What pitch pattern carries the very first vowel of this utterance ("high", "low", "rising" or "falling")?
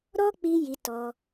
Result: high